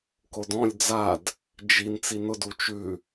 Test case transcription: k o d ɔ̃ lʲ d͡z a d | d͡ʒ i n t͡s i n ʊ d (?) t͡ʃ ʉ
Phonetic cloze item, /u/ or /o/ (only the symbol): u